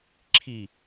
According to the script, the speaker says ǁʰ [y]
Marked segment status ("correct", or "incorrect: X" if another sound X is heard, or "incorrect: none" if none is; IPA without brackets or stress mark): incorrect: i